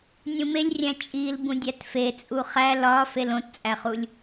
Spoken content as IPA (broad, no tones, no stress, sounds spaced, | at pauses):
nʲ ũ m e lʲ rʲ æ̃ t͡ʃʼ i l b ũ dʲ æ t f e t͡sʼ u χ æ l ɒ f e l õ t t͡sʼ æ χ u lʲ